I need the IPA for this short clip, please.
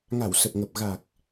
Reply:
ŋ a˧˩ w s ə˨˩ p̚ ŋ ə˨˩ p̚ ɣ a˨˩ k̚

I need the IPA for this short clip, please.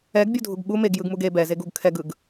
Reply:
ɛ ɡ bʲ u dʱ u ɡ ɓ u m e ɡ j ɯ ɡ m u ɡ e b ɛ z e ɡ u ɡ kʰ ɛ ɡ ɯ ɡ

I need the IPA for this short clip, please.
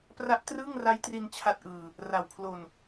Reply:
p r a˦˥ ʔ t r ɯː˥˩ ŋ r a˦˥ j t r i˧ n t͡ɕʰ a˦˥ t̚ ʔ ɯː˧ | r a˨˩ w pʰ l o˧ n

